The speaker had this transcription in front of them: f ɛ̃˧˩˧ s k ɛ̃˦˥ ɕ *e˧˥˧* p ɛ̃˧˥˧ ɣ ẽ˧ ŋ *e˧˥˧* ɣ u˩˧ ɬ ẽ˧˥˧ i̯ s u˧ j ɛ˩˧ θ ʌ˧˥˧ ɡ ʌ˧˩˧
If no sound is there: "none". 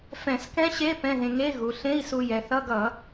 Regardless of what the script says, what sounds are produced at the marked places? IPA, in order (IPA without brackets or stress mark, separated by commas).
e˧˥˧, e˧˥˧